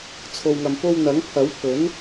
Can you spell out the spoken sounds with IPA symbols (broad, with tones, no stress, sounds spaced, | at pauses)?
t͡sʰ o˨ w ŋ ɐ˨ m p o˧ w n̪ ɐ˨˥ ŋ pʰ ɐ˨˥ w pʰ ɵ˨˥ n